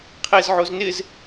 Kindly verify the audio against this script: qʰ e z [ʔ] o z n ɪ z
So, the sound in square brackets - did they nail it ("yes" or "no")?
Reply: no